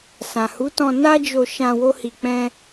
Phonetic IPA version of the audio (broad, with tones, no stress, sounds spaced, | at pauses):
s ã˨ h u˨˦ t ɔ̃˧ n a˦ d͡ʒ o˧ ʃ ã˧ w o˦ h i˧ k͡p ɛ̃˦